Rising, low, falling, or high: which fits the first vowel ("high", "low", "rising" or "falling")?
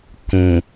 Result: low